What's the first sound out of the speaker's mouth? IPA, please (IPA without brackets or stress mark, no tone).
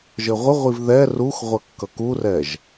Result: ʒ